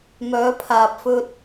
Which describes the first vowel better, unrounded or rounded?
rounded